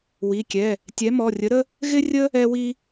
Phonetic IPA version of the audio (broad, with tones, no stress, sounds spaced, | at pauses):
w i˩˧˩ kʲ ɛ˩˧˩ | tʲ ɛ˨˥ m ɔ˩˧˩ rʲ ə˨˥ ɾ ə˥ | ɣ ɪ˥ rʲ ə˥ | ɛ˥ w i˥